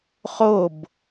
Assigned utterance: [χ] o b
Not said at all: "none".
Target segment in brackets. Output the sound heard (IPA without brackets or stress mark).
χ